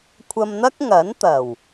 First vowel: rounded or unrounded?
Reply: unrounded